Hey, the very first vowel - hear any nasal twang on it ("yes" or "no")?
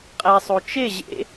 no